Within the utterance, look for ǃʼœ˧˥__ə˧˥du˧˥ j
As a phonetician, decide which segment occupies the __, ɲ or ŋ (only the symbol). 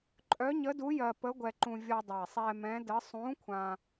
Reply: ɲ